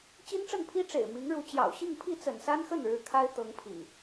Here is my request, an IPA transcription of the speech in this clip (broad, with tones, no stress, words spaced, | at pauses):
t͡ɕi˦nʈ͡ʂə˥˨npʰi˦ ʈ͡ʂḛ˨˩ɪ̯mi˨˦ŋɻu˨˦ t͡ɕjɑ̰˨˩ʊ̯ ɕi˥˨ŋpʰi˥˨ t͡sə̰˨˩nsa˦nxə˥˨nɻɻ̩˨˦ kʰa˦ɪ̯ t̪ɤ˨˦ŋpʰḭ˨˩